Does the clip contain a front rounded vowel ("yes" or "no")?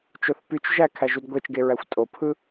yes